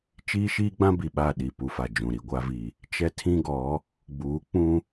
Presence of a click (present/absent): absent